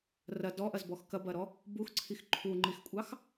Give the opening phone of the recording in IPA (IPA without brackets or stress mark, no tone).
r